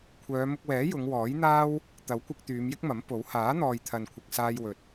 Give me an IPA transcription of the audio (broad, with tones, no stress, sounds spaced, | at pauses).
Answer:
kʷʰ œː˨˧ m ʊ˧ k̚ w ɛː˨˥ j ʊ˨˧ ŋ w ɔː˨˥ j n̪ aː˥ w | t̪ ɐ˨˥ w kʷ ɪ˧ k̚ t̪ yː˨˧ m j ɪ˥ k̚ m ɐ˨˥ m p o˨˥ w h aː˨˥ n̪ ɔː˨ j t̪ʰ ɐ˨ n kʷʰ ɪ˨ k̚ s aː˧ j w ɵ˨ t̚